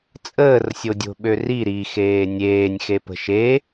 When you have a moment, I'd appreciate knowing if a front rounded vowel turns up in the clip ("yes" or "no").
yes